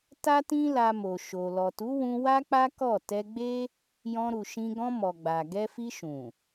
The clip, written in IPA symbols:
t a˦ t ĩ˦ l a˧ m o˨ ʃ o˨ l ɔ˨ t u˨˦ w ũ˧ w a˦ k͡p a˦ k ɔ˦˨ t ɛ˧ ɡ͡b e˦ | j ɔ̃˧ ɾ u˨ ʃ ĩ˧ ɡ ɔ̃˧ m ɔ˨ ɡ͡b a˨ ɡ ɛ˧ f i˧ ʃ ũ˨

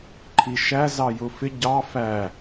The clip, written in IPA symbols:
ǃʰ i ʃ æ z ɑ j ʊ f ɪ ɟ ɑ f æ

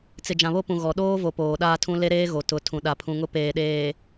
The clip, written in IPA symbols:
t͡s ɪ˨ d͡ʒ ã˨ β o˦ p ũ˨ ɣ ɔ˨ ɗ oː˦ v o˨ p oː˨ ɗ aː˦ tʰ ũ˦ l e˦ ɾ eː˦ ɣ o˨ t ʊ˨˦ tʰ ũ˨ ɗ a˨ pʰ ũ˨ ŋ ʊ˦ p eː˨ ɗ eː˨

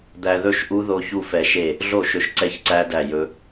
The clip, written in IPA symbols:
d̪ æ˧ ð ɵ˦˥ ʃ ʔ u˦˥ ð o˦˥ ç u˦˥ f ɛ˧ ʃ e˥˩ | ɮ o˥˩ ʃ ɵ˧ ʃ ǀ ɛ˦˥ ç ǀ æ˦˥ d æ˥˩ j ɵ˦˥

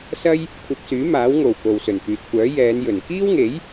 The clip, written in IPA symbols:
s ɐ˥ j | kʷʰ ɐ˧ p̚ s yː˨˥ m aː˨˥ w ŋ o˨˩ w k o˨ w s ɵ˨˩ n f yː˨ t̚ kʷ œː˨˥ j ɛː˨˧ n j ɵ˨˩ n k iː˥ w ŋ e˨˥ j

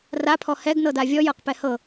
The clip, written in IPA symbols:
r a pʰ ɔ h ɛ ɡ n ɤ d a vʲ ɔ j ɤ q p ɛ h ɤ

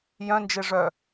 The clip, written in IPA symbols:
j œ̃ n d͡ʒ e ʐ œ

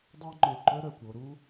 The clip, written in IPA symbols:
dˤ œ˥ w ŋ͡ǃ e˧˩ ǃ œ˥ ɾ œ˧˩ kʷ o˧ ɾ u˥

